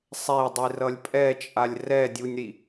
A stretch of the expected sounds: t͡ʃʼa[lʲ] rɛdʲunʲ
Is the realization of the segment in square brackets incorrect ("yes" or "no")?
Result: no